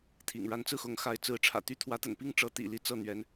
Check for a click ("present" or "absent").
absent